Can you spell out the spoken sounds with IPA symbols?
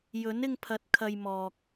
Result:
jɵ˨˥nɪ˧ŋpʰɐ˨˥t̚ kʰɐ˧jmɔː˨k̚

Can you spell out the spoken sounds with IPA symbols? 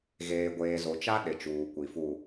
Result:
ɣeː˨ɡʷeː˨zo˨t͡ʃa˦ ɗɪ˨t͡ʃuː˨ kʷi˨fu˨

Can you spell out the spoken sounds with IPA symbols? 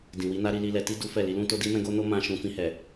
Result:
dĩ˨wi˨˦na˦ ɾi˦li˦lɛ˧ ti˦ du˦fɛ˦˨ li˧lũ˦to˦di˦ mɛ̃˦ɡo˦no˦ mã˦ʃũ˧ fĩ˧hɛ˨

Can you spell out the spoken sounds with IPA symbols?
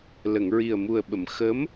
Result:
lə˨˩˨ŋɹi˨˩ə̯mu˨˩ə̯ɓə˨˩˨m xə˧˥m

